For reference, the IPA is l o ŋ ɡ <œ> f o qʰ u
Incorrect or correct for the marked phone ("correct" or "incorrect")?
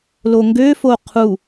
incorrect